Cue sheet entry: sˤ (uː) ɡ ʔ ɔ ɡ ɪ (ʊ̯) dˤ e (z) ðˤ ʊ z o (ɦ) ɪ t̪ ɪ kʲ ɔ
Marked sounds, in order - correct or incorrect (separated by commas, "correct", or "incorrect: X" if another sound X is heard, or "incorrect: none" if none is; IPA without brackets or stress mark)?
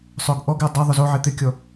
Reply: incorrect: ʊː, incorrect: ə̯, incorrect: none, incorrect: ʕ